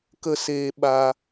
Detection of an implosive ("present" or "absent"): present